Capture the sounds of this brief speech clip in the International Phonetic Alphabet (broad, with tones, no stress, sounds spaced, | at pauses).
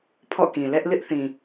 pʰ ɔ̰˦˨ k ĩ˨ l ɛ˦ ʔ l ɪ˦ ʔ θ ĩ˨